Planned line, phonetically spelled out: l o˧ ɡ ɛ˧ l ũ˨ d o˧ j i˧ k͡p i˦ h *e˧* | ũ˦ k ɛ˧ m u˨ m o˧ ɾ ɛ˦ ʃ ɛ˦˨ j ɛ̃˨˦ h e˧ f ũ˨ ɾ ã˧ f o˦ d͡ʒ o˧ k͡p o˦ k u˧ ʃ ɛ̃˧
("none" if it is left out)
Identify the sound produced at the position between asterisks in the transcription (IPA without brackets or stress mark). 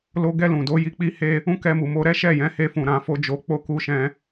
e˦